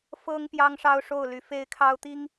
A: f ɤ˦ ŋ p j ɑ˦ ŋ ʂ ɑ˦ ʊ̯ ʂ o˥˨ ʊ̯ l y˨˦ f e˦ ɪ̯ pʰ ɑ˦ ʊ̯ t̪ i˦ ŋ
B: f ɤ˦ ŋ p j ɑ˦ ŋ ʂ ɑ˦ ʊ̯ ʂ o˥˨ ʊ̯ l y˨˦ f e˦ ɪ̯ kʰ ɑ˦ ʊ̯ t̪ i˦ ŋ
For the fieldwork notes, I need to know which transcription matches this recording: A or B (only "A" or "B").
B